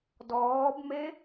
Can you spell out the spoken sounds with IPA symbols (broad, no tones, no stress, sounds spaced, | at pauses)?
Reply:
d ɔː b m e